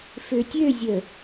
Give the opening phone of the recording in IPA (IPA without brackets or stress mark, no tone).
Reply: f